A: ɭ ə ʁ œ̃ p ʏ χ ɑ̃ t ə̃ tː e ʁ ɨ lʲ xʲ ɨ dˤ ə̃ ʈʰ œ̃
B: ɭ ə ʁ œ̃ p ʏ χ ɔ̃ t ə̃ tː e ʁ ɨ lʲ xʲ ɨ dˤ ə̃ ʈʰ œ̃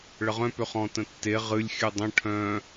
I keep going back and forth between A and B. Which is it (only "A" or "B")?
B